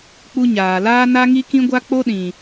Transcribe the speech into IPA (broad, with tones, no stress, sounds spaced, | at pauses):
k͡p u˧ ɲ aː˨ l aː˦ n a˦ ŋ i˦ k ĩ˦ ɡʷ a˦ k͡p o˦ ɗ ĩ˨